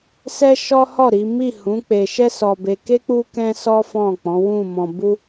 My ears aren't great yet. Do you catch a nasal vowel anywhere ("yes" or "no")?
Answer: yes